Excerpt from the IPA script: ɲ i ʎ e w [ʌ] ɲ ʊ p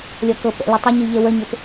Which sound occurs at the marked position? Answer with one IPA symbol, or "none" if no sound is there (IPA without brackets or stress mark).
ə